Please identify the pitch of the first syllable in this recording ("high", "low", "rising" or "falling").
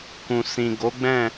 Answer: low